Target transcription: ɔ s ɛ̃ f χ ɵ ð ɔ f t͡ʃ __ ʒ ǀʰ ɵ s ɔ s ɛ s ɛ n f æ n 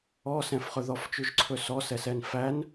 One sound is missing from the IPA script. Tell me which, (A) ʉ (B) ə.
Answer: A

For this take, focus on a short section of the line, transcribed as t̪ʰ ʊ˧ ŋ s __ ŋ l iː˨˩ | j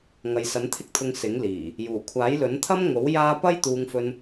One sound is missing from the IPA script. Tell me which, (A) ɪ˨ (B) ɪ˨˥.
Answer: B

